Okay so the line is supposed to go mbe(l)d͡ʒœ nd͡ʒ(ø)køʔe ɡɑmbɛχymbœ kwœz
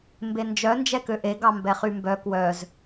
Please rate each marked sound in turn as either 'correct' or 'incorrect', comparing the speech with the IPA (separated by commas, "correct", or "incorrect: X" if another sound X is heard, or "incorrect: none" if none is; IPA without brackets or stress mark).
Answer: incorrect: n, incorrect: ɛ